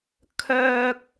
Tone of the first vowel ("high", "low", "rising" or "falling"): high